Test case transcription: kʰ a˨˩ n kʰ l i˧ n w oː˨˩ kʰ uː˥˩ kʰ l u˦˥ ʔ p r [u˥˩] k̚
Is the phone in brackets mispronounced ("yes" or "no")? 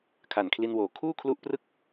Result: yes